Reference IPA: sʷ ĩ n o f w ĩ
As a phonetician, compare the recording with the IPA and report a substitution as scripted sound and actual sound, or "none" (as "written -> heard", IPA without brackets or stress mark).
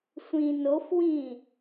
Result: none